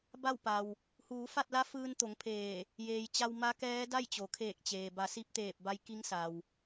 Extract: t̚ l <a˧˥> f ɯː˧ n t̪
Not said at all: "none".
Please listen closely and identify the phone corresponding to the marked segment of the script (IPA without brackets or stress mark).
a˧˥